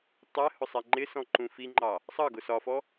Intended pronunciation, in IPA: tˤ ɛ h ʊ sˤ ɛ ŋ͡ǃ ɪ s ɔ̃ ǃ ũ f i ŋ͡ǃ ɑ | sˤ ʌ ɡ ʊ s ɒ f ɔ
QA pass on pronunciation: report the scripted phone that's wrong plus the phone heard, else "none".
none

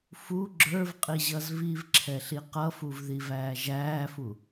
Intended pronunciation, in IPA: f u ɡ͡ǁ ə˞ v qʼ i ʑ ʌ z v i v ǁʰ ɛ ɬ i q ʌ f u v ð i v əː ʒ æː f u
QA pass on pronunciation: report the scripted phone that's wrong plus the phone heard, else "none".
əː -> æː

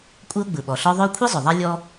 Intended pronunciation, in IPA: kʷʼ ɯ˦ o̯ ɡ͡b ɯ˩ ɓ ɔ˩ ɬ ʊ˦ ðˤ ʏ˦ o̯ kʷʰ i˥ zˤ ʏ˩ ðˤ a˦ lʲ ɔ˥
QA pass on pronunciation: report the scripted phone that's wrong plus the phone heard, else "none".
ʊ˦ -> ɔ˦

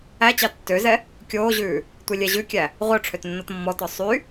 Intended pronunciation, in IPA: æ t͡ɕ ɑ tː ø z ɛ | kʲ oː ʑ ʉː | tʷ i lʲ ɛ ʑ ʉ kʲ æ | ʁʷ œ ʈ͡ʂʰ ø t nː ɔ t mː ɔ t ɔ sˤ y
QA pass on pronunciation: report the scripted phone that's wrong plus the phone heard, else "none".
none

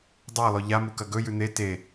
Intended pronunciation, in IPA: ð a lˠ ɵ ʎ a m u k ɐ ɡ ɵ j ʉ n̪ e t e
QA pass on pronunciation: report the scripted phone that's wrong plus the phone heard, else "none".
ð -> dˤ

